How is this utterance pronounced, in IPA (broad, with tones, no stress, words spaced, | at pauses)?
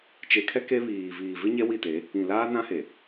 t͡ʃe˨kʰɛ˦ ke˦βiː˨ viː˨vɪ˦ɲɛ˦ wi˦˨te˨˦ | ĩ˨ laː˦ nã˦he˨